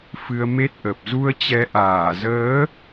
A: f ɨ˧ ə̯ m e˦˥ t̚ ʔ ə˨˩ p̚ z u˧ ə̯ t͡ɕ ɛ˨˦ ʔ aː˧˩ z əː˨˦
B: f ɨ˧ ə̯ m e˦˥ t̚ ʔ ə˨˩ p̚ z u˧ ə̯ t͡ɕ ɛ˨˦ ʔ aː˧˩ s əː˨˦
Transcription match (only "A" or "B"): A